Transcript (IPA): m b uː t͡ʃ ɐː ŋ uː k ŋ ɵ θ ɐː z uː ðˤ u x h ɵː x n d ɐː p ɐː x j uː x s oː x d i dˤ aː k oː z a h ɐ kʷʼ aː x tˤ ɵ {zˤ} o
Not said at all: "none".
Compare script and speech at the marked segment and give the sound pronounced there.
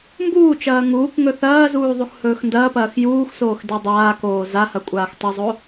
zˤ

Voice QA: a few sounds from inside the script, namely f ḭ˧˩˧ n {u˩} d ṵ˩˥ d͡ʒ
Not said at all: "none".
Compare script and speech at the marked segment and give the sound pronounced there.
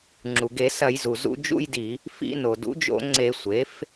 o˩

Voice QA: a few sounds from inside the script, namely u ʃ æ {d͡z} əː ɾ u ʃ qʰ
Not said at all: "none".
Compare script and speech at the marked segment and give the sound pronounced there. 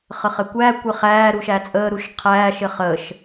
t͡sʼ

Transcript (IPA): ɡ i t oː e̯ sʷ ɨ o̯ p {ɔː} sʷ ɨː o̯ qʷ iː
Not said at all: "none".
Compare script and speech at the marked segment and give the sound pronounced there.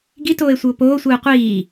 oː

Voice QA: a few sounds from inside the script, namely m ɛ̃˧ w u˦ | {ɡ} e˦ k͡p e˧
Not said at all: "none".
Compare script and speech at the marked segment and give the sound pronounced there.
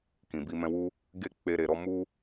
ɡ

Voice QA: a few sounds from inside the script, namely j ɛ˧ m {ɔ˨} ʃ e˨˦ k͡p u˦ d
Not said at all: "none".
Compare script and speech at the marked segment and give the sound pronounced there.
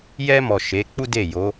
ɔ˨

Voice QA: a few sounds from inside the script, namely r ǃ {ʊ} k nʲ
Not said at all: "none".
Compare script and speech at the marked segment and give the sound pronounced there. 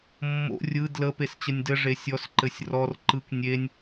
ɯ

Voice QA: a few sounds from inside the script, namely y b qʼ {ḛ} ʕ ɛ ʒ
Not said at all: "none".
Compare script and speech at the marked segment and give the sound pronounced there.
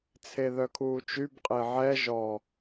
e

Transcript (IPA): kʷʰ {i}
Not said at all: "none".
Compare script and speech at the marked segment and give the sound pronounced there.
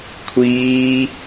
iː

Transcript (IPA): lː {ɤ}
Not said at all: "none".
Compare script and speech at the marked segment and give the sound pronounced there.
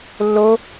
o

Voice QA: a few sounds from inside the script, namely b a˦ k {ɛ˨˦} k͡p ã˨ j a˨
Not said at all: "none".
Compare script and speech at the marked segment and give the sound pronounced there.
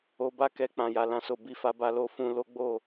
ɛ˧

